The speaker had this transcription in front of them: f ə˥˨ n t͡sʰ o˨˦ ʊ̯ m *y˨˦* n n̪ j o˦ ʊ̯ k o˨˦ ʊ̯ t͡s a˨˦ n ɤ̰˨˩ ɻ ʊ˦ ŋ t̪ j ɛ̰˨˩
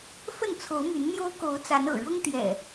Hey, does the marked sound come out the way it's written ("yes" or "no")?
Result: yes